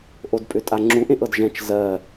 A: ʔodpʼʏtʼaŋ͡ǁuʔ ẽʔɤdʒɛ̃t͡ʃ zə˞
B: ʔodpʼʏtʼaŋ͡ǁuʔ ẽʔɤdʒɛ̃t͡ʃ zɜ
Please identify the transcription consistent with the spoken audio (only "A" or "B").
B